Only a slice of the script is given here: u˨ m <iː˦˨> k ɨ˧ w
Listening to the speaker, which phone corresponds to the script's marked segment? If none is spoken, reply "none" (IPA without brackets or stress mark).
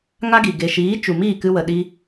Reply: iː˦˨